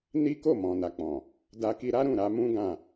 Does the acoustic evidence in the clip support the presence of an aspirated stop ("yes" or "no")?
no